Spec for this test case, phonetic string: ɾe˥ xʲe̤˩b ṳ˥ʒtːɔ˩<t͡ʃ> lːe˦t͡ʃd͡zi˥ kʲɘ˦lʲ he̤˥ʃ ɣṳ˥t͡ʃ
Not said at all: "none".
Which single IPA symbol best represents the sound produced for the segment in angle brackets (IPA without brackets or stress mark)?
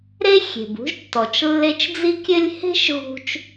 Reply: t͡ʃ